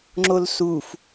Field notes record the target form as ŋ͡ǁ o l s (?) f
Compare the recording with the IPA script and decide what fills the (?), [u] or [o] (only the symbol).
u